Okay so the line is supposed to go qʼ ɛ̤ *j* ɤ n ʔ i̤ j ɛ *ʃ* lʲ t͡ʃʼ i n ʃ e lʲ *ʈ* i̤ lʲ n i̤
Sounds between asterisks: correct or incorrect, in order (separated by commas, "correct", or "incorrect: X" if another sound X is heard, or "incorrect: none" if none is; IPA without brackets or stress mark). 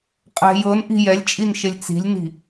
correct, incorrect: none, incorrect: t͡s